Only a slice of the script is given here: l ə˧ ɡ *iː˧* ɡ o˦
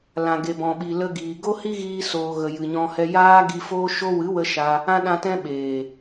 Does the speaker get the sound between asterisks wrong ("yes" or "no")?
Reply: yes